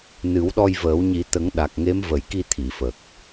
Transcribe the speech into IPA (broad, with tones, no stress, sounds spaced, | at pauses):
n ɨ˨˩˦ w ɗ ɔ˧ j v əː˨˩˦ w ɲ i˨˩˦ t̪ ə˨˩˦ ŋ ɗ a˨˩ k̚ ŋ e˧˥ m v ə˨˩ j k i˧ t̪ʰ i˨˩˨ f ə˨˩ k̚